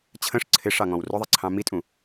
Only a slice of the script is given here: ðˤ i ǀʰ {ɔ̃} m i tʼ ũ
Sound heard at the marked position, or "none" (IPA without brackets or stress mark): ɑ̃